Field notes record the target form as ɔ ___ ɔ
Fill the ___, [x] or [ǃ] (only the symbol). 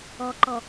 ǃ